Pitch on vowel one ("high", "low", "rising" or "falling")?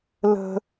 high